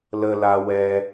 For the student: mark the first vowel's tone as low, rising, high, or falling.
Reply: high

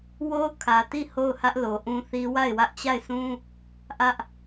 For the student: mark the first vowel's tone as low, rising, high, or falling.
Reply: high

